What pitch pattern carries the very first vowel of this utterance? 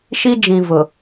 high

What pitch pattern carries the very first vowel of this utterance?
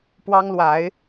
high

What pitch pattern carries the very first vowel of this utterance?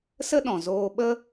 high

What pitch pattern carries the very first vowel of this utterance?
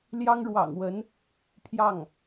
high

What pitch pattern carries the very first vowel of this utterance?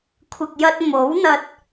low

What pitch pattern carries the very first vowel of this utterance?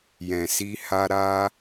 low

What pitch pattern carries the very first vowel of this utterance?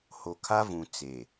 low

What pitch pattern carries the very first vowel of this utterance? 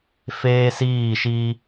high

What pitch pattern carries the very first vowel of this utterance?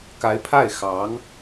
rising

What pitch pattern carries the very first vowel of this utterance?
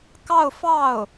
falling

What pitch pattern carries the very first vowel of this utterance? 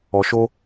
low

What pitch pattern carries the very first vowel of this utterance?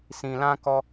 low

